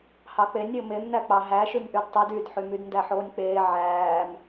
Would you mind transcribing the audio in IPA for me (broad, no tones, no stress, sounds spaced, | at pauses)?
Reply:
h ɑ k͡p e nʲ ɾʲ o m e m n æ k͡p ɑ ɦ æ ʃ y m ʔ y d tˤ y d y d ħ y m y d n d æ ħ oː nʲ k͡p eː ʕ æː m